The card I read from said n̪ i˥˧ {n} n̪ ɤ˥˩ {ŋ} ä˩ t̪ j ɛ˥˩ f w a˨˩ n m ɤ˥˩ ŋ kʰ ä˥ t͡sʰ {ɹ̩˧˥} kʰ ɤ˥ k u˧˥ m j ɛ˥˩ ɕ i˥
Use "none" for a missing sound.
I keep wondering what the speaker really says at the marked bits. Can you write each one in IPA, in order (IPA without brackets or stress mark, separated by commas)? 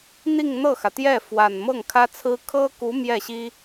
ŋ, x, ɹ̩˥